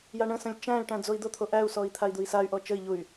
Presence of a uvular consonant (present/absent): absent